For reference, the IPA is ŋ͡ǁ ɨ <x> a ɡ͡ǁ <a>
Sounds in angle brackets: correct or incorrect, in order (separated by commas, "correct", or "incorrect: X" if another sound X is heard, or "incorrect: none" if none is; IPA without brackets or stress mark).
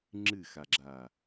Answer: correct, correct